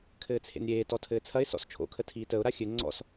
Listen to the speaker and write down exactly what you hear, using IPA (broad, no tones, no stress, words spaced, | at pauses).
kʰɘːt͡sʰḛnɾʲeːtɔ tʰɘːt͡sʰɐɪ̯sɔ̰s t͡ʃʰo̰kʰə tʰiːtəʊ̯ɾa xʲɘ ŋ͡ǀɔ̰s